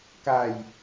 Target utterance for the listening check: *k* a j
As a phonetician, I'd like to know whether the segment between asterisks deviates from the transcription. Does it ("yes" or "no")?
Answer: no